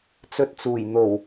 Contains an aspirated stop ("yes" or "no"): no